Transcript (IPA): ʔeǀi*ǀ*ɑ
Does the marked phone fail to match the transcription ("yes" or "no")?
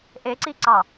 no